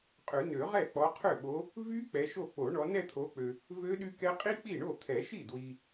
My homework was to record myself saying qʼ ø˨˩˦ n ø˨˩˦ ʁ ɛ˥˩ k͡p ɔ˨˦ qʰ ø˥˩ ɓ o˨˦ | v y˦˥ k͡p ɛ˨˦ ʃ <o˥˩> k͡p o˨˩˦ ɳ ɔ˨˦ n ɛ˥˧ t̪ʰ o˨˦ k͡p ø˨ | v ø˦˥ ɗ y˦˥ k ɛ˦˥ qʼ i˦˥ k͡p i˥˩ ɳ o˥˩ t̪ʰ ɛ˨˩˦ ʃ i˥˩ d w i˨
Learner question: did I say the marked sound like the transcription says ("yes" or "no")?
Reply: yes